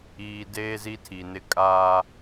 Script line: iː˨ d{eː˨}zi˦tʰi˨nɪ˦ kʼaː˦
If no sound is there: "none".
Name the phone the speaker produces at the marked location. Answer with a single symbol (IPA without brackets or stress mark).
eː˦